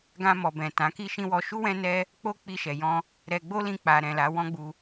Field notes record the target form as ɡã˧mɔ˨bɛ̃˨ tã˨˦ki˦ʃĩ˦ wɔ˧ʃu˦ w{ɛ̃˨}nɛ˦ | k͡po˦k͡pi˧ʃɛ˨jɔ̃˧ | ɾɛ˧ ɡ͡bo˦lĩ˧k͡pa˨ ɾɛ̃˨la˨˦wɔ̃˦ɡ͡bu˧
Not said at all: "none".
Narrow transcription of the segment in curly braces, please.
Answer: ɛ̃˦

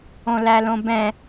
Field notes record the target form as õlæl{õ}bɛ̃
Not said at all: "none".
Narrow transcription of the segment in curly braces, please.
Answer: õ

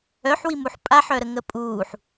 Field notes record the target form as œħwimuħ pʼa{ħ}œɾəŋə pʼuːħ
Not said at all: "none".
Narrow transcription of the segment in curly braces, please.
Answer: ħ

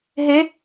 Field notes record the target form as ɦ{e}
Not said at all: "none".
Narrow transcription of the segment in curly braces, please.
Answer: e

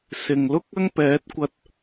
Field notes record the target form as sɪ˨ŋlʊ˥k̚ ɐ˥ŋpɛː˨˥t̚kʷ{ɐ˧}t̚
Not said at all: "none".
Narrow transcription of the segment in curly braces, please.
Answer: ɐ˧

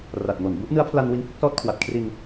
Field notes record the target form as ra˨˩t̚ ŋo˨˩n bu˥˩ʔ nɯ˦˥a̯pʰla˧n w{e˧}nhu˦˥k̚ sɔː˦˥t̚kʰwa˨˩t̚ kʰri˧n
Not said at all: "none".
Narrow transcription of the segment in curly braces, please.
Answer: i˧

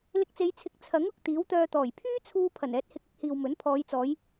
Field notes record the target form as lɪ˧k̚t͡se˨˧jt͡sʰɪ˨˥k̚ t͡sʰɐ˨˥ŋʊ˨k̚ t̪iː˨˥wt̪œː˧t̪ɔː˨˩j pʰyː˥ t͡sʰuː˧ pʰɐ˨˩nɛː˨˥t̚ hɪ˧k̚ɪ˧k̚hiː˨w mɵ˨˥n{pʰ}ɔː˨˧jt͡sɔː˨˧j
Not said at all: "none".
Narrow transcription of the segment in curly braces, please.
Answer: pʰ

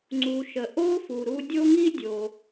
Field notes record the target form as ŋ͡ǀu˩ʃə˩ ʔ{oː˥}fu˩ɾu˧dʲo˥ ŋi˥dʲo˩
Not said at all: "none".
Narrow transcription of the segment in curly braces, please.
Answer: oː˥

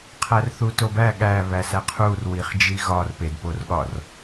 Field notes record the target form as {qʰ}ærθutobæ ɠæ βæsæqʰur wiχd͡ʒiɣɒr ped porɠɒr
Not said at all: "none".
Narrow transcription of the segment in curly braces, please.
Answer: qʰ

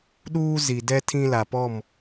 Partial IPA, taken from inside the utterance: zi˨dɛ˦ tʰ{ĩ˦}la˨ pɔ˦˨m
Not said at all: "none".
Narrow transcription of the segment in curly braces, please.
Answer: ĩ˦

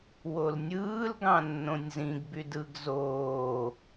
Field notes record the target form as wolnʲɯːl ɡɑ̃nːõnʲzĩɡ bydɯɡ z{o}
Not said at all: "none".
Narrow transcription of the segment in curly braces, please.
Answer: oː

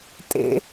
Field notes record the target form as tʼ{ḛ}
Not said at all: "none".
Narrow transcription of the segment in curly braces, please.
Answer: ḛ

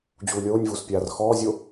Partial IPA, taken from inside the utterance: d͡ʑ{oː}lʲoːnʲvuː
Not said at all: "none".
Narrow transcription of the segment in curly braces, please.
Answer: uː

